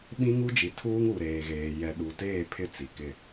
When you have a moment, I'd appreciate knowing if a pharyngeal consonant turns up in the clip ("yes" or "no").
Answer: no